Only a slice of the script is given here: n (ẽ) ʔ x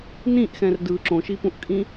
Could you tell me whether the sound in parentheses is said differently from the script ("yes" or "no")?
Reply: yes